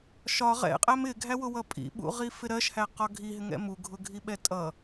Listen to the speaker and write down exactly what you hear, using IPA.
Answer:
ʃ ɒ ʁ ɛ̰ qʼ æ m ɪ ɡʱ æ w ʊ w ʌ pʼ ḭ ɓ ṵ ʁ i f ɪ ɾ ɜ ʃ h æ q ɒ ɡʱ i ɦ ɪ ŋ ɛ̰ m u ɡʱ ʊ ɡʱ i ɓ ɛ tʼ ʌ

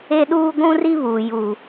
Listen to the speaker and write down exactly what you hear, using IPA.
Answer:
e˦ ɗ uː˦ ɡʷ ũ˦ r i˦ β uː˨ j u˨

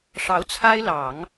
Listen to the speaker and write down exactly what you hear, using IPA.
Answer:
ʂ ɑ˧˥ ʊ̯ t͡sʰ a˥ ɪ̯ l ɑ˨˩˦ ŋ

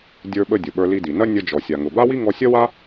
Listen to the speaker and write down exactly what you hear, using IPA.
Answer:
dʲ ə˞˧ ɓ ə˧ dʲ ʊ˩ ɓ ə˞˧ l i˧ d i˩ n ɐ˥ nʲ ə˧ d͡ʒ ɔ˩ sʲ a˩ ŋ ʊ˩ b a˥ w i˥ ŋ ɔ˧ sʲ ɐ˥ w a˥

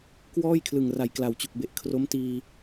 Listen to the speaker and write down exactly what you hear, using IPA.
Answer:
k w ɔː˥˩ j kʰ l ɯ˨˩ ŋ r a˨˩ j k l a˨˩ w t͡ɕ u˨˩ k̚ b e˨˩ ʔ kʰ r o˦˥ m t iː˧

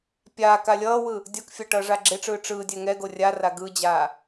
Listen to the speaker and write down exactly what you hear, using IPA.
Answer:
pʲ aː k a lʲ ʌː w ɯ | dʲ ʌ k fʲ a ʈ ʌː ʐ a ɡ͡ǁ e ʈ͡ʂ ɯː ʈ͡ʂ ɯː dʲ ɛ ŋ ɛ ɡ o rʲ a r a ɡ ɯ d͡ʑ aː

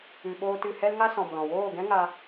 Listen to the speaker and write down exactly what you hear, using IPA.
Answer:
ɨ˨ ɓ oː˧ t ɨ˨ h ɛ˦ l ŋ a˦ s ɔ̃˨ m l ɔ̃˨ w oː˦˨ ɡ ɛ̃˦ ŋ a˧

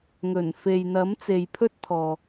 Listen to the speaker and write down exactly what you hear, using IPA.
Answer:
ŋ ɵ˨˩ n f e˨ j n̪ ɐ˨˥ m t͡s e˨ j pʰ ɵ˥ t̚ t̪ʰ ɔː˨

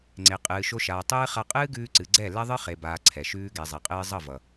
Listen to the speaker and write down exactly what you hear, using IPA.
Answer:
ŋ͡ǀ e˨ qʼ ɨː˨ ʃ o˧ ʃ aː˨ tˤ ɨː˦ χ a˧ qʼ ɨː˦ ɡ ʉː˧ ǀ ɨ˨ ɡ͡ǀ ɛ˦˨ l ɛ˦ ðˤ ɨ˦ χ e˨ b aː˨ ǀʰ ɛ˨ ʃ ʉː˧ ɡ ɛ˨ zˤ e˨ qʼ ɨː˧ zˤ ʌ˦˨ v ʌ˨

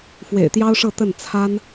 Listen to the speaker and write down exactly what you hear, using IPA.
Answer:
f w ḛ˨˩ ɪ̯ t̪ j ɑ˥ ʊ̯ ʂ ɤ˥˧ t̪ ə˥˩ n t͡sʰ a˥ n

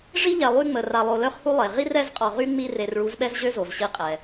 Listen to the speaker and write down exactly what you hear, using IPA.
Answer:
ʐ i˦ ʎ ɛ˨ lˠ y˦ ŋ͡m ə˨ r a˨ lˠ o˨ l œ˦ χ h u˦ lˠ e˨ ʁ i˦ r ɛ˦ z qʼ ɔ˨ ʁ y˦ ŋ͡m i˦ r e˨ r ɭ u˨˦ z ɓ ɛ˦ z ʑ ø˦ z o˨ z ɕ i˦ qʼ ɛ˨

